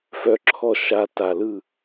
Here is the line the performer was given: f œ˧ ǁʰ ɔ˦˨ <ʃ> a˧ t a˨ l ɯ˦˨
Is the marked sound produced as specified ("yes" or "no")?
yes